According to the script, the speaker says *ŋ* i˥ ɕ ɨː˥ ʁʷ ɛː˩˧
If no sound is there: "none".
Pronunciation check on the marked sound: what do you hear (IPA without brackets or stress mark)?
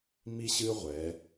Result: m